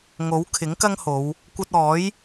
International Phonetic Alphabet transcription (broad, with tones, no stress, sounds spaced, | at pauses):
ŋ o˨˥ w kʰ ɪ˨˥ ŋ k ɐ˥ ŋ h o˨˧ w | kʷ ɐ˧ t̚ ɔː˨˥ j